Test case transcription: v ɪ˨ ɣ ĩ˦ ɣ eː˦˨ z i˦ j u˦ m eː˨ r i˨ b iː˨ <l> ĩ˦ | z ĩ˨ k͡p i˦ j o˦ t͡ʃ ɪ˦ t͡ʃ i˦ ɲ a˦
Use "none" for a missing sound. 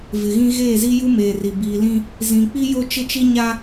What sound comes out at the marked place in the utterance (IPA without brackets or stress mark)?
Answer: l